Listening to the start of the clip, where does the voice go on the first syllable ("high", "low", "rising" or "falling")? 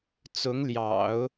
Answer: rising